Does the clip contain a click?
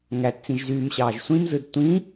no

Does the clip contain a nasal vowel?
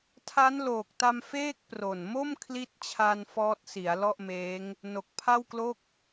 no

